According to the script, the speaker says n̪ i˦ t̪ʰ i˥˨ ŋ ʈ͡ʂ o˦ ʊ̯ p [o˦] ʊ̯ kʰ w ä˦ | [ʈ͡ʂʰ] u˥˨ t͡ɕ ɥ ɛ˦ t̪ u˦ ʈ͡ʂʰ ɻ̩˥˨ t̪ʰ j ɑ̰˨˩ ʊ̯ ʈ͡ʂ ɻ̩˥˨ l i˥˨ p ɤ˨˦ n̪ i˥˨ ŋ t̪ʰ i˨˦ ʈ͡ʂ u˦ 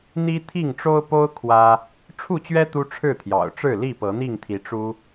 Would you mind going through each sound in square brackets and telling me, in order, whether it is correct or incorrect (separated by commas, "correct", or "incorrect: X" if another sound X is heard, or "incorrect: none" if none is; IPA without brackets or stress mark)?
correct, correct